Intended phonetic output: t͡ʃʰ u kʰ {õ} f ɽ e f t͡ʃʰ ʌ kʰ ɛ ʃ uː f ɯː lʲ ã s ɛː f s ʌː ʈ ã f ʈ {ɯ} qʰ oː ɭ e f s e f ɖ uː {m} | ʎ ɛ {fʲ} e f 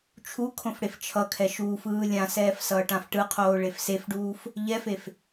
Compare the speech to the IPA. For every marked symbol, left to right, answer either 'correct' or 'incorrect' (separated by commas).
correct, correct, incorrect, incorrect